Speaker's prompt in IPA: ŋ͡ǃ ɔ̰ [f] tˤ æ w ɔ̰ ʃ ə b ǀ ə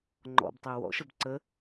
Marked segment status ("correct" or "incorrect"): incorrect